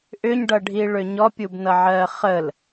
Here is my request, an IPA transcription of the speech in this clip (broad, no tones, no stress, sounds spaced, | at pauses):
ʔ ʏ ɲ ɖ ʌ ɖʱ i ɭ ʏ ɲ ɔ pʲ u b n ʌ ʕ ɜ χ ə l